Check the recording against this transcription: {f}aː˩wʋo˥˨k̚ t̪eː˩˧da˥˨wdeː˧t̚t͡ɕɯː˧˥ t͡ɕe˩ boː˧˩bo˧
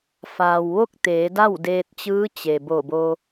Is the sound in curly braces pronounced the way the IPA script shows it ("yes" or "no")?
yes